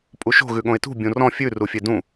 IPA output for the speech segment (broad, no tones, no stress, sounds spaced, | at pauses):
pʼ u ʃ o̤ ɣ ʉ ɠ õ ɪ̯ t ṳ bʲ ũ r ɔ̃ fʲ ʉ r u fʲ e d ũ